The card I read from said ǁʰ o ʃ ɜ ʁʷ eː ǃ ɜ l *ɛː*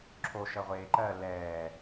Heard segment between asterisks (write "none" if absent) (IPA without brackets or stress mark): ɛː